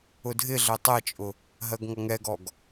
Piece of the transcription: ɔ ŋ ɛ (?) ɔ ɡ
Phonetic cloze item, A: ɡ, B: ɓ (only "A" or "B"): A